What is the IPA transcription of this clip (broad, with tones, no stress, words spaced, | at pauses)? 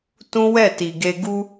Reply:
tũ˦wɛ˦˨ti˨ɡe˧ ɡu˧